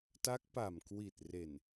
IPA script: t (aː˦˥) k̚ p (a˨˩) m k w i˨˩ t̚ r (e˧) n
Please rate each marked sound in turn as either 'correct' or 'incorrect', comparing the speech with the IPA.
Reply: incorrect: a˦˥, correct, incorrect: e˨˩

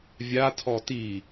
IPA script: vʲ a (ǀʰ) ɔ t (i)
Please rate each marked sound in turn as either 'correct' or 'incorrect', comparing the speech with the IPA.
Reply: incorrect: tʰ, correct

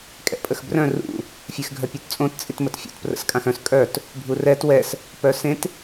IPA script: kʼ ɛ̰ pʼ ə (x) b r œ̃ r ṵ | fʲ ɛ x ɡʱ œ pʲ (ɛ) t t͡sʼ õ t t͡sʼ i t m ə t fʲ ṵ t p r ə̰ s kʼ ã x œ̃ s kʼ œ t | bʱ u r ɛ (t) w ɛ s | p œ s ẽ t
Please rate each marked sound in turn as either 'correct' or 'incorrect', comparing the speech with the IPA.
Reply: correct, incorrect: œ, correct

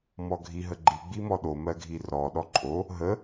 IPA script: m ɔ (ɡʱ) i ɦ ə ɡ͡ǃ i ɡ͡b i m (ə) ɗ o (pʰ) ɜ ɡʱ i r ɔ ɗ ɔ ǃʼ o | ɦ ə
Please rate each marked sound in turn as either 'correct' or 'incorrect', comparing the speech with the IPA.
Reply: correct, incorrect: ɔ, incorrect: m

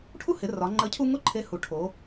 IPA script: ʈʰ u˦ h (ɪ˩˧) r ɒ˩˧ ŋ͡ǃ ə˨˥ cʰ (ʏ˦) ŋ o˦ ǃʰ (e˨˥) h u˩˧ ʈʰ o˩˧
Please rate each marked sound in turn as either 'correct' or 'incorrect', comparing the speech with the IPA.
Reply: correct, incorrect: u˦, correct

